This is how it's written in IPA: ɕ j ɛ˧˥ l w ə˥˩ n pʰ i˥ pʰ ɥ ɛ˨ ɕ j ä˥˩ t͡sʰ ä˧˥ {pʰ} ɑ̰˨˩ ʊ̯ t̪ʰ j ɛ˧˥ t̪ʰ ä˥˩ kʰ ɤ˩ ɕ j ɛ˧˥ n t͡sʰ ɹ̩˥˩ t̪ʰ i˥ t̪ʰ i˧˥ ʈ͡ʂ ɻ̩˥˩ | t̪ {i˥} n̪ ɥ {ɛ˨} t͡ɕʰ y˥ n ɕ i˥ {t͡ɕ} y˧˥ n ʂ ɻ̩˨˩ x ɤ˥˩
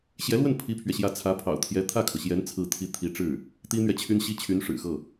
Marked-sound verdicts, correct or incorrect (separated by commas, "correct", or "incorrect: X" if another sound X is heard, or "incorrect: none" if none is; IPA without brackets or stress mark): correct, correct, correct, incorrect: t͡ɕʰ